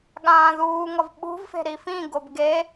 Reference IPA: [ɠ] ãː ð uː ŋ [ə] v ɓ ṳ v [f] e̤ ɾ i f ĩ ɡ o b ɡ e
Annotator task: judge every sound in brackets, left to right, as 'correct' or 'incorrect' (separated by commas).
correct, incorrect, correct